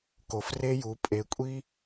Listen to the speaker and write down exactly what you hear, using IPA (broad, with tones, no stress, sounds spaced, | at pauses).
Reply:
k o˩˧ f r e˧ j u˩˧ pʼ e˩˧ kʷʼ i˧